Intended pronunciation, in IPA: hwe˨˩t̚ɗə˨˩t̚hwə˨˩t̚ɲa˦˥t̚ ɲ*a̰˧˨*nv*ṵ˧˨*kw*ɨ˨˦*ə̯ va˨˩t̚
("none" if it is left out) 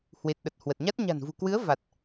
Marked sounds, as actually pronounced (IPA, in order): a̤˨˩, ṳ˨˩, ɨ˨˦

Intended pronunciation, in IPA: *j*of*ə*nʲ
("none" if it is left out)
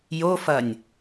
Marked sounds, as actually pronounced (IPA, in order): j, ɐ

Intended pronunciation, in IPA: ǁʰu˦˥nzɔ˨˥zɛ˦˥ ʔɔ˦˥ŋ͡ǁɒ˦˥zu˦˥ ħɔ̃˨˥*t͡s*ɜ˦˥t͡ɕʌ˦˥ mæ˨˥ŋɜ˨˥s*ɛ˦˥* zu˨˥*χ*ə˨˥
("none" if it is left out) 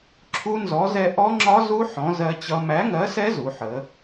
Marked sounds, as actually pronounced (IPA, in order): z, ɛ˦˥, ħ

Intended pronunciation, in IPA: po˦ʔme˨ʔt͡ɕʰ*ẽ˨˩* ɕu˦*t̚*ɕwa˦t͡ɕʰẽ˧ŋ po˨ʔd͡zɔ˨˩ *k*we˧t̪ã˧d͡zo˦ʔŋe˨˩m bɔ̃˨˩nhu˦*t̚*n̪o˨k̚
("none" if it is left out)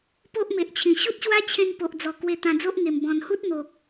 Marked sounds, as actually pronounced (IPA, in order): ĩ˨˩, t̚, k, t̚

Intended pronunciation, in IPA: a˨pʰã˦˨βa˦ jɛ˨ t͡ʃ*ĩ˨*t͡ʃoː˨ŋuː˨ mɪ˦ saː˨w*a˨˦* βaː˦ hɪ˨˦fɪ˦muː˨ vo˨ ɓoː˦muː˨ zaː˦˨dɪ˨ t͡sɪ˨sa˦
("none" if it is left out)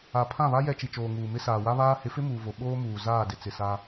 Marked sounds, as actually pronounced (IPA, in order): i˨, a˦

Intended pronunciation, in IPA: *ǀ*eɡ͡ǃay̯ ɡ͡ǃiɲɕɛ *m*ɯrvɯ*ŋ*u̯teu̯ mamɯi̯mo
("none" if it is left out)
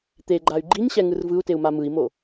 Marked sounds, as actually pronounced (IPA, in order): t̪, ŋ, none

